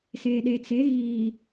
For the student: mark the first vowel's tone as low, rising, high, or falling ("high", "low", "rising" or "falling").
low